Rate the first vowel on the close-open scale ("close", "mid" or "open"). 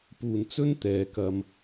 close